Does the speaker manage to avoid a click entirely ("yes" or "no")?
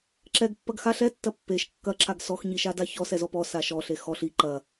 no